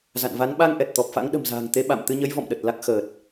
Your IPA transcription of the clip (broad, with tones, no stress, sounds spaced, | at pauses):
z a̰˧˨ n v a˨˦ n ɓ a˧ ŋ ʔ ɛ˨˩ t̚ t̪ ɔ˨˩ p̚ f a̰˧˥ ŋ ɗ ə̤˨˩ m z a̤ː˨˩ ŋ t̪ e˨˦ ɓ a̰˧˨ m t̪ ɨ˧ ɲ ə˨˦ j v ɔ̰˧˨ m ɗ ə˨˩ t̚ l a˦˥ k̚ x əː˨˩ t̚